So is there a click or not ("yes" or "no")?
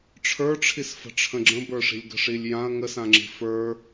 yes